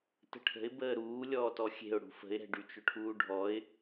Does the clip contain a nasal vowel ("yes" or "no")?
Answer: no